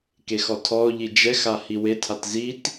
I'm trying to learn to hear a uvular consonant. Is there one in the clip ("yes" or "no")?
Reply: no